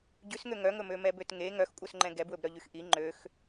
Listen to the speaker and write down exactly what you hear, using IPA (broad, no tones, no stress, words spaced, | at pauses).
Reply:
ɟʉsŋø ŋœŋɵmømɛ bøtŋe ŋœxkʷʼœsŋ͡ǃɛ̃ ɡɛbwɵbɾœ ʎyxʔi ŋ͡ǃøx